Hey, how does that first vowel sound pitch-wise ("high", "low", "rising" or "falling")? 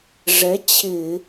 rising